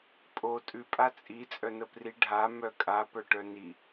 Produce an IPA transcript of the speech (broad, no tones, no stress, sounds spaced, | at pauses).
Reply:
pʼ o tʼ ʉ pʼ a t͡sʼ i t͡sʼ œ n ə p r i ɖʱ a m œ kʼ a p œ ʈ œ n i